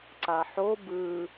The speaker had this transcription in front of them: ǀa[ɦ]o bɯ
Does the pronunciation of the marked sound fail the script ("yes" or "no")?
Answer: yes